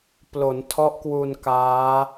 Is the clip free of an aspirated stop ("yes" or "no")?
no